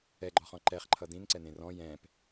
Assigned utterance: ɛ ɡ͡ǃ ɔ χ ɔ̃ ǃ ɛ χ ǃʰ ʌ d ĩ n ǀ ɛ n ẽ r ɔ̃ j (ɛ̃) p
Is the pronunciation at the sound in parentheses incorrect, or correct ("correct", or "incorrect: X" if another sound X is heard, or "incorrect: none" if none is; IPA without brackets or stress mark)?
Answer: correct